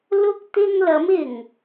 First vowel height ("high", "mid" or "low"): high